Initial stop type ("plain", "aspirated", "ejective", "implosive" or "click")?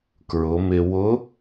plain